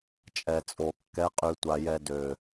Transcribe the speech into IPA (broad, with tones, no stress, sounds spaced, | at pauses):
t͡ʃʼ ɛ˨ t͡sʼ o˨ kː ɛ˨˦ qʼ y˨ tʷ a˨ j ɛ˨ d ø˨